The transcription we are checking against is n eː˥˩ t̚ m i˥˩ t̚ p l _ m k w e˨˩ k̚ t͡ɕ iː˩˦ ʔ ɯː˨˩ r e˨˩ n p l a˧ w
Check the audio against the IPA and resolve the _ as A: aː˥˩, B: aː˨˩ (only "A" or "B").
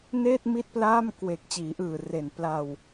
A